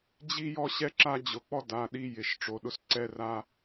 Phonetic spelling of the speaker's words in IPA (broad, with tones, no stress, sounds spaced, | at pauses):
d͡ʑ i˦ j ɔ˦ ɕ ɛ˦ ǁ a˦ d͡ʑ ʊ˩˧˩ k͡p ɔ˦ d a˩˧˩ ɗ i˦ j ɪ˩˧˩ ʃ ʈ͡ʂ o˩˧˩ ɗ ʊ˦ s ǀ ɛ˦ r a˦